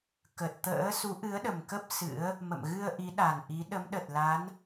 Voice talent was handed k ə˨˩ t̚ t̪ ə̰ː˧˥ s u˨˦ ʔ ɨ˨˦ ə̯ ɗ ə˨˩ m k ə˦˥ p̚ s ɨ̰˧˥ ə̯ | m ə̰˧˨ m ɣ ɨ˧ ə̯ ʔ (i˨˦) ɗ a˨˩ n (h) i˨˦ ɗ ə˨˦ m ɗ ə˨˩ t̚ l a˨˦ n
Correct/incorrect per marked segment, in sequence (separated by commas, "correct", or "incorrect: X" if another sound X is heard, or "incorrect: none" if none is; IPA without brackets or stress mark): correct, incorrect: ʔ